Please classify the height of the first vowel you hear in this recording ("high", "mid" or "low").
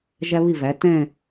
low